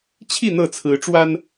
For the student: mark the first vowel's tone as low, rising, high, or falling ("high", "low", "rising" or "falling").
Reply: falling